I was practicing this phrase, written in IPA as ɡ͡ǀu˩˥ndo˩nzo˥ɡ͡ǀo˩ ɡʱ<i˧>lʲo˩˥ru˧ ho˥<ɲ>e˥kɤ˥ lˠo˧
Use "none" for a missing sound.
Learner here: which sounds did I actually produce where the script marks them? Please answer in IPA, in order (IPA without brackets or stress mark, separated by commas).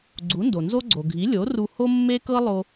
i˩˥, mː